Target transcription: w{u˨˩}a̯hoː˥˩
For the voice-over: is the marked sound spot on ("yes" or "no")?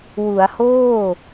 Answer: no